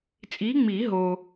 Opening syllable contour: rising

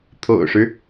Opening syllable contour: low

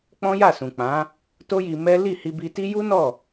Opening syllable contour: high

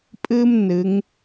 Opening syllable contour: high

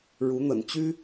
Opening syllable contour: rising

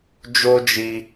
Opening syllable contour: high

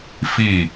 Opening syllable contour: falling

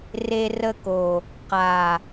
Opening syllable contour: high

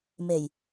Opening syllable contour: low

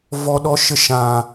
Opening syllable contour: low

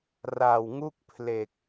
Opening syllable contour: low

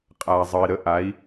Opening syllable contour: low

